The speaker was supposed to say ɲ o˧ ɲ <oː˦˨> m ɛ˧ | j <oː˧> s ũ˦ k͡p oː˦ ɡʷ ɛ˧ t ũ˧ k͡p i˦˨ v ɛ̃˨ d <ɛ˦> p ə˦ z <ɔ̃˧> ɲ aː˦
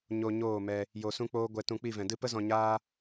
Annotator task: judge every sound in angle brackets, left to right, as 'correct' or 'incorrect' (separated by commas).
correct, incorrect, incorrect, correct